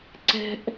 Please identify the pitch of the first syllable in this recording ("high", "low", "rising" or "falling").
high